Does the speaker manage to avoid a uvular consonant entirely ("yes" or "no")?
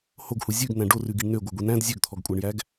yes